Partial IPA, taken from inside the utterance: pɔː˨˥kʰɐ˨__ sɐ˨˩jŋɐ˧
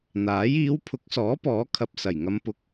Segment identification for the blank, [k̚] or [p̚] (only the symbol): p̚